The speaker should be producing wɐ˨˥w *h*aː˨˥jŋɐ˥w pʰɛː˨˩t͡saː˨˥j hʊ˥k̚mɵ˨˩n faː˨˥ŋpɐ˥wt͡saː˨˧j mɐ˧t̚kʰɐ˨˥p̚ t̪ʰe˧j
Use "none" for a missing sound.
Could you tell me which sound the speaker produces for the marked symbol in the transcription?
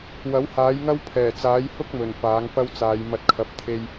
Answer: h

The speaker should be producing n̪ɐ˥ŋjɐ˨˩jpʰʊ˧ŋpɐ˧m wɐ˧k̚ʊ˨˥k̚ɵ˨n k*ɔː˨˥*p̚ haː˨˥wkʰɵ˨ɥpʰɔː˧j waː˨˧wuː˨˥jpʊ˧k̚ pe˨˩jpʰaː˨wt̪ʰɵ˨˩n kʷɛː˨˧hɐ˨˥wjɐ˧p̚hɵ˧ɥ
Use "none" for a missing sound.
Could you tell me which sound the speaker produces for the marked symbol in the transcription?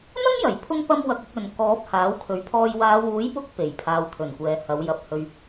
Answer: ɔː˨˥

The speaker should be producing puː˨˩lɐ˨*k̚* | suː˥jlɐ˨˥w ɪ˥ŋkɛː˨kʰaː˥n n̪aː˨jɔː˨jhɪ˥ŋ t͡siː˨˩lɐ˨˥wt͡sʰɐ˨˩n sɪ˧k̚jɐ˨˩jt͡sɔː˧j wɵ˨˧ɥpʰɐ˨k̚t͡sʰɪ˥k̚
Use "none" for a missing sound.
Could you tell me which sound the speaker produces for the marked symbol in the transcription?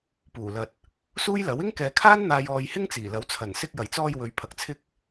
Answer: t̚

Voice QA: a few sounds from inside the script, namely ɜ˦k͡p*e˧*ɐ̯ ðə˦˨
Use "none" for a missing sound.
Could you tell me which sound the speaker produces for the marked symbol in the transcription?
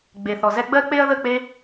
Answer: e˦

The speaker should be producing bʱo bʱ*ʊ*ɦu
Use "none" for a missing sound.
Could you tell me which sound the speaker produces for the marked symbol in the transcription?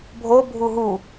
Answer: u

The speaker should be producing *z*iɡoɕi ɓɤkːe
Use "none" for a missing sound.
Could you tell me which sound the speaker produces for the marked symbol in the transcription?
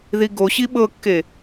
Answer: ð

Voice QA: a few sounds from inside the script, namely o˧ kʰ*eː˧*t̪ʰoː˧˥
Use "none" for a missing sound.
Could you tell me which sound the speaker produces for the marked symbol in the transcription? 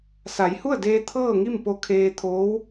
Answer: eː˧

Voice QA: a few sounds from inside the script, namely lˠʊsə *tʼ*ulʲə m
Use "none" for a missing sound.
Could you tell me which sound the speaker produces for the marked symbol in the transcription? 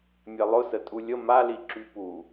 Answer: tʼ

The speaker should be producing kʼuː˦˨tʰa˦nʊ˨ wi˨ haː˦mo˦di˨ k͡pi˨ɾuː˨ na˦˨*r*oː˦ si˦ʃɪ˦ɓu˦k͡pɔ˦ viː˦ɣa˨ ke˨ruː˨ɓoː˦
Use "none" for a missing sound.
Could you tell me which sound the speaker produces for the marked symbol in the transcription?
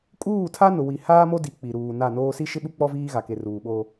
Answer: n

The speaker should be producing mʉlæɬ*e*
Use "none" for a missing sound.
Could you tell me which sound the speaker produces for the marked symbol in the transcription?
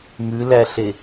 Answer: e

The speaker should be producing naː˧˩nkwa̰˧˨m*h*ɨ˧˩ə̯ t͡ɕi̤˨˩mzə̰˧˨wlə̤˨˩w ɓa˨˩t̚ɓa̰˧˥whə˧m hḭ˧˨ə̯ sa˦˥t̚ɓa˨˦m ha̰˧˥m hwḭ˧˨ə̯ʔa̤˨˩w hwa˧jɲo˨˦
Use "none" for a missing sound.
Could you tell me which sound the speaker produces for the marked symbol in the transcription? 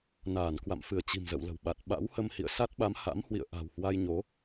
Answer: f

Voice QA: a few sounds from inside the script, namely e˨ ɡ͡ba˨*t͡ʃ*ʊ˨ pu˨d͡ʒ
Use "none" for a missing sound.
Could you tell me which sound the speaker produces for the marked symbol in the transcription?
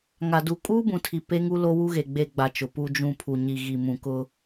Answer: t͡ʃ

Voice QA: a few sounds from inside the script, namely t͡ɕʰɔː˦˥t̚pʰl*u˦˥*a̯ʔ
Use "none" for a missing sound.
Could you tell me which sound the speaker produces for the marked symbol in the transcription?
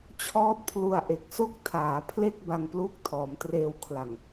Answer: u˧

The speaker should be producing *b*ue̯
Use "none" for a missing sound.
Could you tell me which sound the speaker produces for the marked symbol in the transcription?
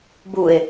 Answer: b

